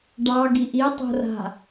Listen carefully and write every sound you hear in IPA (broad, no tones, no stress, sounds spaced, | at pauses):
ɖ ɑ ɡ i ʔ i tˤ o̤ r a̤